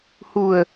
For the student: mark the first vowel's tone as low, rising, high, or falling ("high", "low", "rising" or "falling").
low